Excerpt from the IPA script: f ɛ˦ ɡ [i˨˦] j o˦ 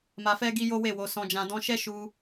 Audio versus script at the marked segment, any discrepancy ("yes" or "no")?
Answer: yes